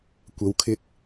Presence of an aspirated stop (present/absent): present